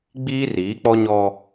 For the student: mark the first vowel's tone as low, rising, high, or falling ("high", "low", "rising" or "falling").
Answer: high